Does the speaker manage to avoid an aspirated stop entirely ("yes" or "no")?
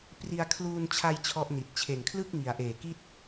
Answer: no